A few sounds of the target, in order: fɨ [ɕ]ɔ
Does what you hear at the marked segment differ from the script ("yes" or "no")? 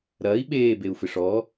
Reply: yes